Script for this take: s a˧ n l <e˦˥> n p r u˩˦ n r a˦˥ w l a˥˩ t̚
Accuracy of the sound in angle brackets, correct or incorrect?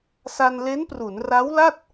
correct